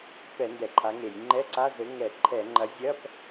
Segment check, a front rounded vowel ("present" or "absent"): absent